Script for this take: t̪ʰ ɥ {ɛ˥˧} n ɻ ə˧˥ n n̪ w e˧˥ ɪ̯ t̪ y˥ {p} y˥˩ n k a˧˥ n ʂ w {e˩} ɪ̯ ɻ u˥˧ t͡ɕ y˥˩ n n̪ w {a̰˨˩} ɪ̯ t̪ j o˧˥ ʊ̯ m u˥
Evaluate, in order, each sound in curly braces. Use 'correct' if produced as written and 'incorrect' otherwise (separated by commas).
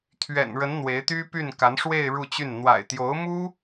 incorrect, correct, incorrect, correct